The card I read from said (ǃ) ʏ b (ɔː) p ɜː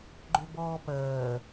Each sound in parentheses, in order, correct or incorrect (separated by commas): incorrect, correct